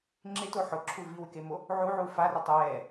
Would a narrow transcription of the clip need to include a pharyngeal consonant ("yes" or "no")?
yes